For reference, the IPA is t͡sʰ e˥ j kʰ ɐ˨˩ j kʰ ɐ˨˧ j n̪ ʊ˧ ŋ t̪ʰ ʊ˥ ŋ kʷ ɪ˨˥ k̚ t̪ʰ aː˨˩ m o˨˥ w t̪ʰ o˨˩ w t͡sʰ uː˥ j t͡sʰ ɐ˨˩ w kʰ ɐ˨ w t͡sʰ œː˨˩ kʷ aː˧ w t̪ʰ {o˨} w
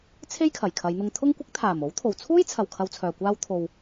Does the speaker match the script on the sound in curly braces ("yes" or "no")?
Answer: yes